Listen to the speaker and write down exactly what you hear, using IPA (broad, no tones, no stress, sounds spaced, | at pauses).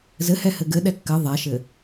z ɘ h ɛ h ɘ ɡ ɘ ɗ ɛ kː ɘ ðˤ ɛ ʃ ɘ